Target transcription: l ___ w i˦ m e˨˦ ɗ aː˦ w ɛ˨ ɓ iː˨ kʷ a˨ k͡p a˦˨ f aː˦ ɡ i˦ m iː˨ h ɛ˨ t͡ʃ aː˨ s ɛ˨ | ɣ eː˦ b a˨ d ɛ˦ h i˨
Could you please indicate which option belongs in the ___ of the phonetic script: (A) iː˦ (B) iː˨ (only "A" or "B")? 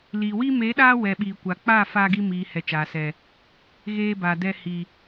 B